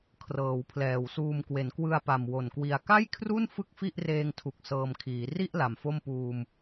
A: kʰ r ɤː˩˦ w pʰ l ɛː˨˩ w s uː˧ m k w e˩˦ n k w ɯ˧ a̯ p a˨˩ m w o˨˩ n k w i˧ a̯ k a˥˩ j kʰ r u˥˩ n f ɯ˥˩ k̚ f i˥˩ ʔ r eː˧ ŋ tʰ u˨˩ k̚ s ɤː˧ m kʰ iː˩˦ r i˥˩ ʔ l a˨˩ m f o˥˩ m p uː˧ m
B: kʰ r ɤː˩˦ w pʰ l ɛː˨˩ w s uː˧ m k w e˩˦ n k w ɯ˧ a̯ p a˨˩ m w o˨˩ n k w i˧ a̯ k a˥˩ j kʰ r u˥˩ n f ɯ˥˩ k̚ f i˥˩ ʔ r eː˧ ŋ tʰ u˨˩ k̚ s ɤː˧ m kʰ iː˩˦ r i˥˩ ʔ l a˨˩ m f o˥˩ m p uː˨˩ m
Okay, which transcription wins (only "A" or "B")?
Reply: A